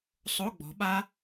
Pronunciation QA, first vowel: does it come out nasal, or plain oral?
oral